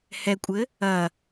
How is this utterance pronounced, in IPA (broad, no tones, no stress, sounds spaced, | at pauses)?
h ɛ kʷʼ ɘ | ɐ